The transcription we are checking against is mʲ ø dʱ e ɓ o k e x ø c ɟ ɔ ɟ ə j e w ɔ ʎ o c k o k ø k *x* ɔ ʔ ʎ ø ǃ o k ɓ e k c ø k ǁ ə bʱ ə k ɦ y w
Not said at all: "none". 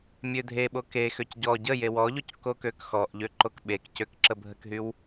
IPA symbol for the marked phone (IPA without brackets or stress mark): x